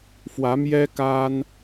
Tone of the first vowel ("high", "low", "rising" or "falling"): rising